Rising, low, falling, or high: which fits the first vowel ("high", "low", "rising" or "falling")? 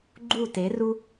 falling